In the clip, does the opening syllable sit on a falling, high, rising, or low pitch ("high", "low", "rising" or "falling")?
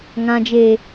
low